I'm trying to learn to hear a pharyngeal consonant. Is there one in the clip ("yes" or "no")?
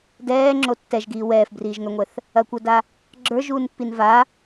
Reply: no